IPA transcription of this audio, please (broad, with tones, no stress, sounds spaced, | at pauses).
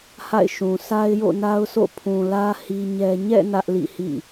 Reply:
h a̰˦˨ ɪ̯ ʃ ũ˨ sʰ a˦ ɪ̯ j o̰˦˨ n a˦ ʊ̯ sʰ o̰˦˨ pʰ ũ˨ l ä˦ h i˦ ɲ ɛ˦ ɲ ɛ̰˦˨ n ä˦ ʔ l ḭ˦˨ h ḭ˦˨